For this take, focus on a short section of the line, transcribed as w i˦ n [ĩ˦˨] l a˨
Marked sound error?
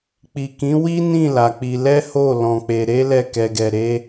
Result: no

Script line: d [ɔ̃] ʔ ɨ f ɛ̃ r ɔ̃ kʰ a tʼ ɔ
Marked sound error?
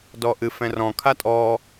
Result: yes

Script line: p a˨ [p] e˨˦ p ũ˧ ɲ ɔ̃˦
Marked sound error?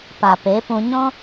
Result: no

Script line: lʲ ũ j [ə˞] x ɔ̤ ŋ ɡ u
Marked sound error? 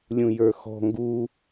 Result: no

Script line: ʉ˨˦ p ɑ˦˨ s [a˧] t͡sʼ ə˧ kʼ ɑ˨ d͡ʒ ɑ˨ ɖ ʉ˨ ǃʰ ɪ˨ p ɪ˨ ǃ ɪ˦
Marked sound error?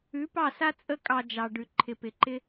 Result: yes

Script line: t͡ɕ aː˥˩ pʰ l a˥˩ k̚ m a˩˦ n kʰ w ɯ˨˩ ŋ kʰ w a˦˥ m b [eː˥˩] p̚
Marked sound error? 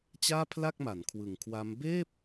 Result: no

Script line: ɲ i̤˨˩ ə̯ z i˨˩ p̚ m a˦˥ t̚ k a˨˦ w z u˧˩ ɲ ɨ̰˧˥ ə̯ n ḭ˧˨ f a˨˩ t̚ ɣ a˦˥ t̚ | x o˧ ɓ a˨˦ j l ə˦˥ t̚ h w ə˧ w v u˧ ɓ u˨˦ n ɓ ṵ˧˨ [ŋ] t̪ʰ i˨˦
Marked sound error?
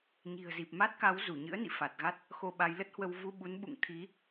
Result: no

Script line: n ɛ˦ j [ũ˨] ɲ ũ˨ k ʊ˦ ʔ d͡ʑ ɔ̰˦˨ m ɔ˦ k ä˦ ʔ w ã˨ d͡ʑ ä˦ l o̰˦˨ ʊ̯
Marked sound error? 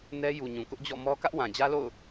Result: yes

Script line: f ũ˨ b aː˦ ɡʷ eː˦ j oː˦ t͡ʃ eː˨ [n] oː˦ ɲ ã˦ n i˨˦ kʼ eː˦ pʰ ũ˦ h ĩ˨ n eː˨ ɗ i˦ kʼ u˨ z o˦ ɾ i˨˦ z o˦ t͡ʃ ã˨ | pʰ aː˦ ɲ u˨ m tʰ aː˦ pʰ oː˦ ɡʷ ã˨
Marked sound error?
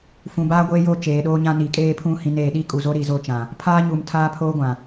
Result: yes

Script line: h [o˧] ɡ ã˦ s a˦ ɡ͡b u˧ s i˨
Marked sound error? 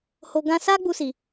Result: no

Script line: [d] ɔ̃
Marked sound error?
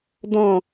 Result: no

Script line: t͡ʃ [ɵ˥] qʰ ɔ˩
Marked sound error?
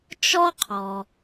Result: yes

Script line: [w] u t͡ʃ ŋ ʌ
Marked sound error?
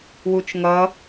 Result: no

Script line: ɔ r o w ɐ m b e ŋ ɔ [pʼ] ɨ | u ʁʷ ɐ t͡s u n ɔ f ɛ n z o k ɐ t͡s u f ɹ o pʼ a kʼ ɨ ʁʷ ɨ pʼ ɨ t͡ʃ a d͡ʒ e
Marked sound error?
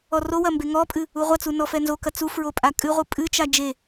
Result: no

